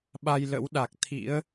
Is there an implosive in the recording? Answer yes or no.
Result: yes